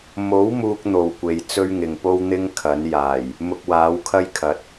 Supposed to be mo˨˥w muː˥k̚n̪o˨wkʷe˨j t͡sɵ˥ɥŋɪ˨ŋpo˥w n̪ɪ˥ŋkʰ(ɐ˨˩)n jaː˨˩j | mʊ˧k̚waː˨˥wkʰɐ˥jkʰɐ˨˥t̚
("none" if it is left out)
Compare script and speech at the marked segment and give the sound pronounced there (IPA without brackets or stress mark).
ɐ˨˥